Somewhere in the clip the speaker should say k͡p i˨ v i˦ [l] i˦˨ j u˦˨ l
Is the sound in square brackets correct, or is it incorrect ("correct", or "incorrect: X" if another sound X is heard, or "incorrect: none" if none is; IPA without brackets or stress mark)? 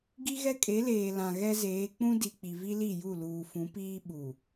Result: correct